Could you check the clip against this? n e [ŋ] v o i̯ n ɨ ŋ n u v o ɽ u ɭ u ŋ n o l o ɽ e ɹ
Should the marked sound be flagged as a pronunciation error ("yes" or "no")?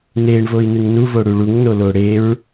yes